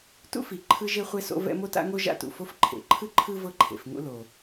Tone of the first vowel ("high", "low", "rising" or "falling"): high